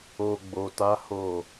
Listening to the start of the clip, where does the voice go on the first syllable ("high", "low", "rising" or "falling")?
low